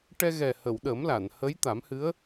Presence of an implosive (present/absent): present